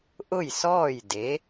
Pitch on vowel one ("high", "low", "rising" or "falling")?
falling